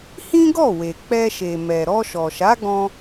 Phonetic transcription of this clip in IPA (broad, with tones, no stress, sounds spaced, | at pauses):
h ĩ˦ ɡ ɔ˦˨ w e˨ k͡p ɛ˧ ʃ e˨ m ɛ˨ ɾ ɔ˧ ʃ ɔ˨ ʃ a˨˦ ɡ ɔ̃˧